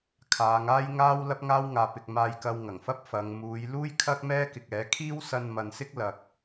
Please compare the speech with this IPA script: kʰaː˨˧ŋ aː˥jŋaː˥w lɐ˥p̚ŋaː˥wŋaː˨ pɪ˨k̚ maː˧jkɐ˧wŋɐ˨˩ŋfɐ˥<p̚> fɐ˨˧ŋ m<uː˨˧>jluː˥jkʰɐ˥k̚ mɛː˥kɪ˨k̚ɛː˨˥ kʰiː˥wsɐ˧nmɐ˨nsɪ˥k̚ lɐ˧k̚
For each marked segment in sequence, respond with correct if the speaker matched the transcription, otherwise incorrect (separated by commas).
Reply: correct, correct